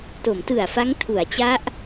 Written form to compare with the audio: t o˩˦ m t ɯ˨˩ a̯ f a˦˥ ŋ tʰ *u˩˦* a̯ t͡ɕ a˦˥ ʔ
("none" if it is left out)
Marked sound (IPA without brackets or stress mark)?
u˩˦